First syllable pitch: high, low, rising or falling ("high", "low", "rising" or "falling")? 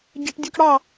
high